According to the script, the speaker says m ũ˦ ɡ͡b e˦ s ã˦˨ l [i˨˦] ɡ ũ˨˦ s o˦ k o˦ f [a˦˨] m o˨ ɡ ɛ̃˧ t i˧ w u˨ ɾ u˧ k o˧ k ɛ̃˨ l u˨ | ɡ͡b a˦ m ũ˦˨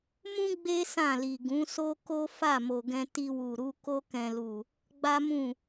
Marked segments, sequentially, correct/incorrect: incorrect, correct

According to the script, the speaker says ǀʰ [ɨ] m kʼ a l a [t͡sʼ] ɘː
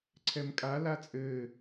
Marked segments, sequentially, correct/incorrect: incorrect, correct

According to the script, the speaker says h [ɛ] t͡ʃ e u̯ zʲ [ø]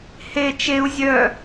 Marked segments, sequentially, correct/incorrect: incorrect, incorrect

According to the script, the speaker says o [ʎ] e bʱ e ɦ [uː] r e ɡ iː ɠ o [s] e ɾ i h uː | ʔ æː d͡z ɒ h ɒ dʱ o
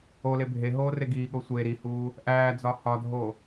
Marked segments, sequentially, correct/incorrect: incorrect, incorrect, incorrect

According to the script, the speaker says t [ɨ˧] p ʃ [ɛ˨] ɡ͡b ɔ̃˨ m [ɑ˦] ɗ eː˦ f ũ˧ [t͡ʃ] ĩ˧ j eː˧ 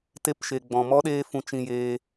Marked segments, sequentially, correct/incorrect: incorrect, incorrect, incorrect, correct

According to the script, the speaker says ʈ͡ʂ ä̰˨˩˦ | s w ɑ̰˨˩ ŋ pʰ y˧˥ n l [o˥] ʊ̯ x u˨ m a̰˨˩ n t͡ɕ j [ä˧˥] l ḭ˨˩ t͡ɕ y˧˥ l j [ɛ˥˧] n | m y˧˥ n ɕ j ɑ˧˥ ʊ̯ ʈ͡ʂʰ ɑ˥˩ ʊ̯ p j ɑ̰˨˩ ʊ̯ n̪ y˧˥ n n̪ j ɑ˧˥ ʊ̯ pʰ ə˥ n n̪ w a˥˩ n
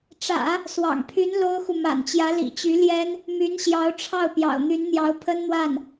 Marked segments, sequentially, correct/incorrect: correct, correct, incorrect

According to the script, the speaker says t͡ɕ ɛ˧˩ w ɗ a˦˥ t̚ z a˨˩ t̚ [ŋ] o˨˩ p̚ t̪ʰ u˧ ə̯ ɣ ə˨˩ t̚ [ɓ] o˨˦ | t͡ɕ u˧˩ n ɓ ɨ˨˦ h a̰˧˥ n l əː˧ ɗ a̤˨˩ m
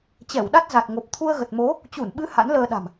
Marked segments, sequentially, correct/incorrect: correct, incorrect

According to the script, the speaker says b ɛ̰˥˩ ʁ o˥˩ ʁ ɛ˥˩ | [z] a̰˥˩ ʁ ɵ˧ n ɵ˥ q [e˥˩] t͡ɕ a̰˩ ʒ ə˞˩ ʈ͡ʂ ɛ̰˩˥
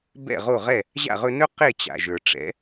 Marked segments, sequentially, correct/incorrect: incorrect, correct

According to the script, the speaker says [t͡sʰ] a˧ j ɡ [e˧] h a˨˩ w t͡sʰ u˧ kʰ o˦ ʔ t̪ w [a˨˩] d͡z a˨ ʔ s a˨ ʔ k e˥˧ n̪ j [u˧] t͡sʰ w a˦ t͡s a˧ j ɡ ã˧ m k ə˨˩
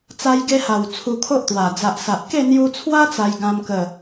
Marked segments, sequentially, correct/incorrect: incorrect, correct, correct, correct

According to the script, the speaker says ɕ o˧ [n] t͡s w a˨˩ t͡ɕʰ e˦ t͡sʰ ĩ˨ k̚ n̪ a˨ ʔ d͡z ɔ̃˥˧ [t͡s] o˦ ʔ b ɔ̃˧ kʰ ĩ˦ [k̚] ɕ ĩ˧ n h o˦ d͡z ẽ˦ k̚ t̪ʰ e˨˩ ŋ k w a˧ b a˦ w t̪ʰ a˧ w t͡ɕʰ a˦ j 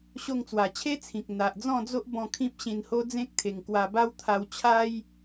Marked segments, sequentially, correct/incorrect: incorrect, incorrect, incorrect

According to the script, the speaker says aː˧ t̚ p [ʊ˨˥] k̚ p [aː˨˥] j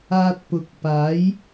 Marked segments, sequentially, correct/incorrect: correct, correct

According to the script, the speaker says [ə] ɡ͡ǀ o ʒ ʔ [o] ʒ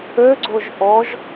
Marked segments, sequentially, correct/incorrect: incorrect, incorrect

